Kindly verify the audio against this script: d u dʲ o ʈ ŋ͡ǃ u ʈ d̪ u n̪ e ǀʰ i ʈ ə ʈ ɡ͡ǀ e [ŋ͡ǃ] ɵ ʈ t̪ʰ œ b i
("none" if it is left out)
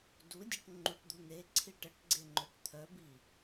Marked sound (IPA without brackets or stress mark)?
ŋ͡ǃ